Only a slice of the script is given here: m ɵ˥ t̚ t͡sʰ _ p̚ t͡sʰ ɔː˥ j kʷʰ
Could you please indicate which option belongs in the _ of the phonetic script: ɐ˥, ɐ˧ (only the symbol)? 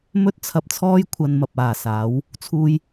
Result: ɐ˧